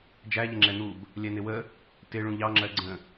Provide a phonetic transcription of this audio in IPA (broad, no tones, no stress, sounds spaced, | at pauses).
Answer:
d͡ʒ æ ʎ ə ŋ͡ǁ ɛ n̪ u b | lʲ ɛ n ɪ w ə | t ɪ ɭ ũ ʎ ɑ ŋ͡ǁ ɜ ɡ͡ǀ ə̃